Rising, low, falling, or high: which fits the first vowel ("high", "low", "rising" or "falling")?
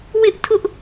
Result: high